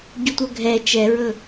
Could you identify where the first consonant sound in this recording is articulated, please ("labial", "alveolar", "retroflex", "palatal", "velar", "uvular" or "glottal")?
palatal